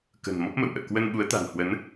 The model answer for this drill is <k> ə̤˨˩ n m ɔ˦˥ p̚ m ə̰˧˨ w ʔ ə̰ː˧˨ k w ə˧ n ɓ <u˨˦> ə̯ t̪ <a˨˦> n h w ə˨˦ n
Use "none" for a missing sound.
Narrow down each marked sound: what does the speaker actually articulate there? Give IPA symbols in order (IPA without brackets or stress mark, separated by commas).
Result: k, u˨˦, a̤˨˩